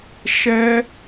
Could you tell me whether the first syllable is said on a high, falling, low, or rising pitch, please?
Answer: high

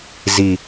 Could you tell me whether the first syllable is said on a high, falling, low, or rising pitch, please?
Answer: low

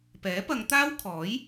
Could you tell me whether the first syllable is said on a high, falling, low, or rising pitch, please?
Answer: rising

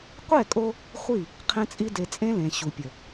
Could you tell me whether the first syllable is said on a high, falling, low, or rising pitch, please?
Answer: falling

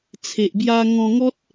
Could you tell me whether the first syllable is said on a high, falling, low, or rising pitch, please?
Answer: low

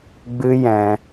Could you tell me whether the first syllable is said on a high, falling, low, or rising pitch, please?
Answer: high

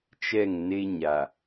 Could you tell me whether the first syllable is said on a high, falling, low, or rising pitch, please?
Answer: falling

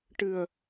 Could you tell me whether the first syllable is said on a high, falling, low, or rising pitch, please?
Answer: low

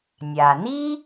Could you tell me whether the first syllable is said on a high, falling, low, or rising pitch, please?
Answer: low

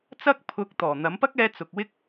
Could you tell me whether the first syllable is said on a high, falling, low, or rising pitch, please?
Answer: high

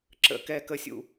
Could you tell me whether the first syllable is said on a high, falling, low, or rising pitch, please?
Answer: low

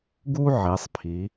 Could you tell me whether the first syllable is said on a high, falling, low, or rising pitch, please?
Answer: high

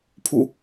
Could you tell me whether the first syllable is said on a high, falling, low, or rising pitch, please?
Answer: falling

